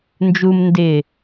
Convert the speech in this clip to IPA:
n d͡ʒ u m n d ɪ

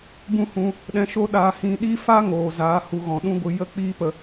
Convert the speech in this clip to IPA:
b ũ˦ h ũ˧ | ɗ ɛ̃˧ ʃ o˦ ɗ aː˧ h ĩ˧ ɗ i˦ f a˦ ŋ oː˨ z aː˨˦ h u˧ ɣ ɔ̃˨ ɗ ũ˦ ɡʷ ɨ˧ j ə˦ k͡p iː˦ p ə˧

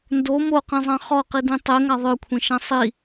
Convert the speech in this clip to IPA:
n d o m o q ĩ zˤ ã χ ɔ q i d ĩ tˤ e ŋ a ðˤ œ kʷʰ ẽ ʃ ã sˤ i

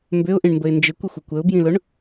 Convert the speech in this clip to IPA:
m b ʏ ʊ̯ ʔ ĩ ɳ m b ə ɪ̯ n d͡ʒ ɪ kʷ ɪ xʷ ɪ kʷ ə ʊ̯ b j ĩ l ʊ ɳ

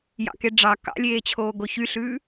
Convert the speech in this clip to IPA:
j ɑ̰ k e ɖ͡ʐ ɑ k ɑ̰ lʲ eː t͡ɕʰ oː ɡ o ç y ɬ ʉː

